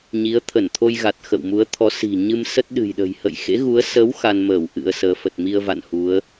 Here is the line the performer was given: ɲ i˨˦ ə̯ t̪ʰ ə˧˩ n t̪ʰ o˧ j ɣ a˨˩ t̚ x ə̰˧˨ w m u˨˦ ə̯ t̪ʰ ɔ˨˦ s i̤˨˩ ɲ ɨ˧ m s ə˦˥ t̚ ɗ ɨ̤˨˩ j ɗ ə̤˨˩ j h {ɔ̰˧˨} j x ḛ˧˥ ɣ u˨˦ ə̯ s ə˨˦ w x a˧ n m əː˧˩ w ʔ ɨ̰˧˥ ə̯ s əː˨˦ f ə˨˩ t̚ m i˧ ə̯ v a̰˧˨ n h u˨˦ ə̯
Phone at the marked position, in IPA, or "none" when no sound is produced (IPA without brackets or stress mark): ə̰˧˨